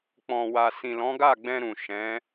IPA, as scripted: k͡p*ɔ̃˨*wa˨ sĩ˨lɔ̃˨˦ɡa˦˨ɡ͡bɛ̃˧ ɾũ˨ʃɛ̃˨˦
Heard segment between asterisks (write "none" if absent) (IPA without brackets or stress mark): ɔ̃˨